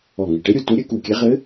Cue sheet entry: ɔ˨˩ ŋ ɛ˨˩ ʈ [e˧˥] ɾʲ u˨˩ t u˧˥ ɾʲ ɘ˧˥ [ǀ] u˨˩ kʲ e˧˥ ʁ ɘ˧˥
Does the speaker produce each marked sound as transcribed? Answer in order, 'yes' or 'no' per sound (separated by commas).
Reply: yes, no